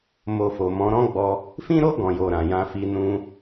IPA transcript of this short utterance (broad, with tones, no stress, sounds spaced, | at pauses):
m o˧ f o˨ m ɔ̃˨˦ ɾ ɔ̃˦ ɡ͡b ɔ˧ | f ĩ˦ ɾ o˦ ɡ ɔ̃˧ j o˧ ɾ ã˨ j ã˧ f i˧ n ũ˧